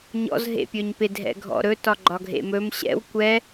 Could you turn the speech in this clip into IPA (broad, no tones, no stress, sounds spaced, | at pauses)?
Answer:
ɲ ɔ̰ z ɦ ḛ pʲ ɵ ɲ p ɪ dʱ ɛ̰ ɡʱ ɔ̰ ɾ ɵ t ɒ ɡ͡ǃ ɒ ɡʱ ḛ m ɵ m ɕ ɛ̰ w kʷ ɛ